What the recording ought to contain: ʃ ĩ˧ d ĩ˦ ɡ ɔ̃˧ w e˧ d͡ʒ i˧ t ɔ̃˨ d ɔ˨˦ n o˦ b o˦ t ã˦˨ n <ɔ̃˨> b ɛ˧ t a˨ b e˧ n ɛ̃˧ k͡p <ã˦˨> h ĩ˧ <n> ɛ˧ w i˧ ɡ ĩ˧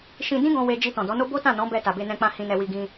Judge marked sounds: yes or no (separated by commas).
no, no, yes